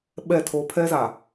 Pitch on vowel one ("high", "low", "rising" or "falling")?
falling